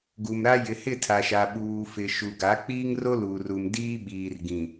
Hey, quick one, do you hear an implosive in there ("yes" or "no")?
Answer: yes